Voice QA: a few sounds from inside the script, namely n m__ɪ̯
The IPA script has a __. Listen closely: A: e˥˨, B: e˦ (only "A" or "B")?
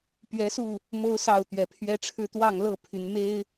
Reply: B